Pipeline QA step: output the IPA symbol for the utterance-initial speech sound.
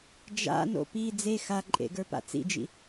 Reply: d͡ʒ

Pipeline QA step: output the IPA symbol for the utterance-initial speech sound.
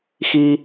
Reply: x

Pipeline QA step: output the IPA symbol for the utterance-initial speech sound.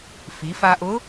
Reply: f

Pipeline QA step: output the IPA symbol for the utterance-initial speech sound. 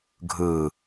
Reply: ɡʱ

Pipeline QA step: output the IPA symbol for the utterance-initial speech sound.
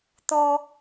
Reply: t̪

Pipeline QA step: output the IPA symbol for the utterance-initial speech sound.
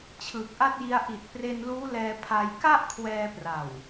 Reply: t͡ɕʰ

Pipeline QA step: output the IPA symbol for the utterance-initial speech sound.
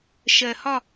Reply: ʃ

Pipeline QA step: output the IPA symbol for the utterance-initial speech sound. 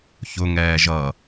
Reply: ç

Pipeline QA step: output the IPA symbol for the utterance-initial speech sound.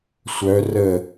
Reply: sʷ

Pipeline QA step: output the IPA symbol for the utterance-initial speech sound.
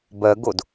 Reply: b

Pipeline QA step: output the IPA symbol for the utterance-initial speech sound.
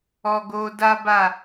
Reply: ɔ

